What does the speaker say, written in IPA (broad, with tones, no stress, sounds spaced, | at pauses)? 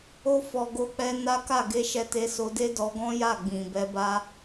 o˧ f ɔ˨ ɡ o˧ k͡p ɛ˧ n a˦ k a˦˨ ɡ e˧ ʃ ɛ˧ t e˧ s o˧ d e˦ d ɔ˧ ɡ ɔ̃˦ j a˦˨ ɡ͡b ĩ˨ b ɛ˧ b a˦